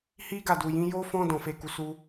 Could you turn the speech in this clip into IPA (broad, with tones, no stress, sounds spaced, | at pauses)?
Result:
h i˦ ɡ a˦˨ d u˨ j ĩ˨˦ j o˦ f ɔ̃˦ d ɔ̃˦˨ f e˧ k u˧ s u˦